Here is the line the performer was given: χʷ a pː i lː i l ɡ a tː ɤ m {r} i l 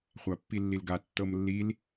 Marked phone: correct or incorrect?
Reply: incorrect